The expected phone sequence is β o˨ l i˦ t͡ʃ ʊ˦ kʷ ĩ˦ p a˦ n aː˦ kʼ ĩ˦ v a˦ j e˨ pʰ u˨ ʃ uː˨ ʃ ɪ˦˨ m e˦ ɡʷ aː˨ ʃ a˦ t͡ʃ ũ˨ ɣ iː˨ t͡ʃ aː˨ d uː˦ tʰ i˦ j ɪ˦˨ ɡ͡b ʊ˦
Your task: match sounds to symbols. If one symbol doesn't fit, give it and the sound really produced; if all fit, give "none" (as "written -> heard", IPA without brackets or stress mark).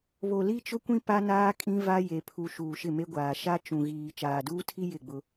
none